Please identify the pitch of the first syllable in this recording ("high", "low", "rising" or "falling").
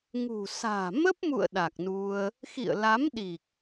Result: low